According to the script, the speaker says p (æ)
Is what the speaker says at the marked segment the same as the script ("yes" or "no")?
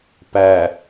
yes